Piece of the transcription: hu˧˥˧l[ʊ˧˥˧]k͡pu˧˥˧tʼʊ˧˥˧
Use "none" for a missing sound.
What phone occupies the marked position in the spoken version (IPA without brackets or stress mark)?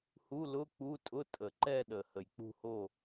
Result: ʊ˧˥˧